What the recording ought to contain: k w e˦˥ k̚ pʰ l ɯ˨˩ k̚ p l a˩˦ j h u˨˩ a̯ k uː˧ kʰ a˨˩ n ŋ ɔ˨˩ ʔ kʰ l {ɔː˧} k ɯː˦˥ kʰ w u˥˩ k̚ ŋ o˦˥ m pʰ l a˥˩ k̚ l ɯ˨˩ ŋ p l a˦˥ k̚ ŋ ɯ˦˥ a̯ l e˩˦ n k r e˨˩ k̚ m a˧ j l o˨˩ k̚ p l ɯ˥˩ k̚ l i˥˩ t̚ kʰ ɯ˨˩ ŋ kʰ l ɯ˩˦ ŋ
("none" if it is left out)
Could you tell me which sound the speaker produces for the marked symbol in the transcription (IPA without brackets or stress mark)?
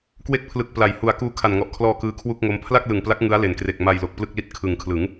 ɔː˧